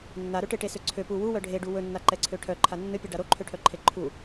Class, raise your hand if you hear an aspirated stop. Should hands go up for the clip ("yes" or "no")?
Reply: yes